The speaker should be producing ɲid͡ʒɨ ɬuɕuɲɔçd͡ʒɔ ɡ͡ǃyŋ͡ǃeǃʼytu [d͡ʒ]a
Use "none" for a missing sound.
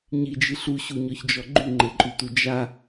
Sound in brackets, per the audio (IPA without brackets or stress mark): d͡ʒ